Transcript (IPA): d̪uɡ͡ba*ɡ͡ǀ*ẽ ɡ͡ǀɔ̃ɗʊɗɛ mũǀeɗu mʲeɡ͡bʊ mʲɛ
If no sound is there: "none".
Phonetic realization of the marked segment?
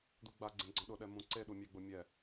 ɡ͡ǀ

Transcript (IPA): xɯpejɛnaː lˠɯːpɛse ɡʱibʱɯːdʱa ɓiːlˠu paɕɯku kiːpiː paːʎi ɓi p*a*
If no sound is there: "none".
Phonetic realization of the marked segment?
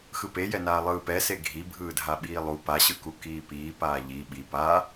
a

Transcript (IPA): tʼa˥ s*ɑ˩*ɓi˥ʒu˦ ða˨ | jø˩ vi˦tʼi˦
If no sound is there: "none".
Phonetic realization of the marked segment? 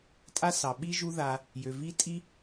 ɑ˩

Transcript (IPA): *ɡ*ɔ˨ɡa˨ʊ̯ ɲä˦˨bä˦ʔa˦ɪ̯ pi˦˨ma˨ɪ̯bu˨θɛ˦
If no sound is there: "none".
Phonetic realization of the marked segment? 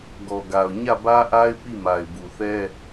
ɡ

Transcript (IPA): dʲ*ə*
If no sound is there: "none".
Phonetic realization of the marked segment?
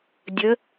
ə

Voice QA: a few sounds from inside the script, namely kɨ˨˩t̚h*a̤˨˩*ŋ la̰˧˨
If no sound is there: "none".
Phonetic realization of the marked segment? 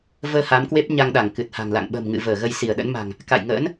a̤˨˩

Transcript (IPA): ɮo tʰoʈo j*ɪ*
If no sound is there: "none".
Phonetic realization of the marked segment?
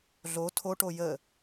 ə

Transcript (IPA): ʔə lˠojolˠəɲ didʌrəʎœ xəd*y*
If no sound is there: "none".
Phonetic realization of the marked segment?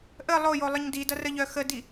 i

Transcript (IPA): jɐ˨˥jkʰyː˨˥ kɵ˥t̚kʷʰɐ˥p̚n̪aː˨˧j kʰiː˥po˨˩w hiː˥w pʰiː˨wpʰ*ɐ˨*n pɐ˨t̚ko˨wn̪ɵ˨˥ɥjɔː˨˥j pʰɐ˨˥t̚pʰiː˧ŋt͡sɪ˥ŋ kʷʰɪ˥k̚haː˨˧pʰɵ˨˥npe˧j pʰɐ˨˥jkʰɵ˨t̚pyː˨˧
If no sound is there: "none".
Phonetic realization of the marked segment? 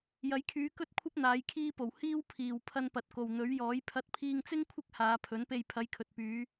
ɐ˧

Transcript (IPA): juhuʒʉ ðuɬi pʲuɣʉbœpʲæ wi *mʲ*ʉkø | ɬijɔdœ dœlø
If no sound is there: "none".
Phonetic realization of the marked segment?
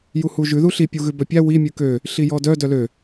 mʲ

